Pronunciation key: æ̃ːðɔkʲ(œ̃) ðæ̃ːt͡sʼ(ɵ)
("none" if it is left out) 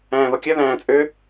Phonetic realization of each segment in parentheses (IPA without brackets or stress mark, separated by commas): œ, ø